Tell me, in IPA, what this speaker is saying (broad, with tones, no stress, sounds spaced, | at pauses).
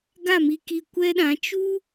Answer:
ɡ a˦˨ m i˧ k i˧ kʷ ɛ˦ ɗ ã˨˦ t͡ʃ u˦